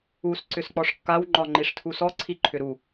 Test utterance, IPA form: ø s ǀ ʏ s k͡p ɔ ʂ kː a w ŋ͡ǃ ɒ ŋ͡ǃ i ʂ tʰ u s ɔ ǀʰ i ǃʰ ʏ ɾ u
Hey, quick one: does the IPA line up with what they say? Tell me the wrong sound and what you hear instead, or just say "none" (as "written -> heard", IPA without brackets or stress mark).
ø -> u